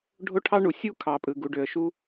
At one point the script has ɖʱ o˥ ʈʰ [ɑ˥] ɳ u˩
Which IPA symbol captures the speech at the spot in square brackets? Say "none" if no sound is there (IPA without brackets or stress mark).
ɑ˥